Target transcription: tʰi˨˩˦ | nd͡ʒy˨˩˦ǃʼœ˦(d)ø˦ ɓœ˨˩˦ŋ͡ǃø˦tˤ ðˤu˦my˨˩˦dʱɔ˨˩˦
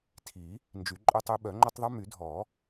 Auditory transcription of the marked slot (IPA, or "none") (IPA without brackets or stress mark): tˤ